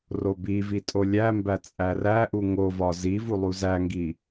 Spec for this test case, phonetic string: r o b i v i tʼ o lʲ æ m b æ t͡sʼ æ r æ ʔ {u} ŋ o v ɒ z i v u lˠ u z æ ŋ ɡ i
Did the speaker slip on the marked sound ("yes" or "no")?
no